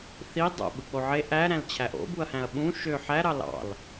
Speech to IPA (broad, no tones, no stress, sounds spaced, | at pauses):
θ i dˤ o̰ ɓ ɯ k͡p o ʕ e ʔ æ ɾ æ̃ l t͡ɕʰ æ ʔ o̰ b u ɐ̯ h æ̃ ɐ̯ ɓ ũ ʃ ø ħ æ ɾ ɑ l ɑ̰ l